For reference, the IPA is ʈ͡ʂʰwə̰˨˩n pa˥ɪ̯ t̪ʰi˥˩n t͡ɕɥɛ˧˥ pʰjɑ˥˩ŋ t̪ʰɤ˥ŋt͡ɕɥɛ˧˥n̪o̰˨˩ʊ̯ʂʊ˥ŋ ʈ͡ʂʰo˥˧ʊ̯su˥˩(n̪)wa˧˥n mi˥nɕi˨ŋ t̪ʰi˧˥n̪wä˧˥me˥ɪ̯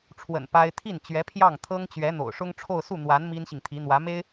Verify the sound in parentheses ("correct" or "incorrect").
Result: correct